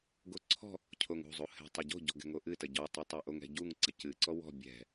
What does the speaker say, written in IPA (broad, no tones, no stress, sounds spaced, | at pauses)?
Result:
ɡ o ǀʰ ɔ̤ | cʰ o ŋ ṳ zˤ u h ɛ̤ tˤ ɐ ɟ o̤ ɟ ɔ̤ ɡ ɛ̤ ŋ o ʔ ɨ t ɐ ɟ ɔ tˤ ɨ tˤ ɛ ʔ o ŋ ɛ̤ ɟ u ŋ ǀ ɐ c ɨ ǀ ɔ w ɔ̤ bʲ ɛ̤